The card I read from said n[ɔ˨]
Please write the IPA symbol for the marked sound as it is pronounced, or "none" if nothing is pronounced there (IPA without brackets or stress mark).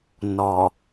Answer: ɔ˨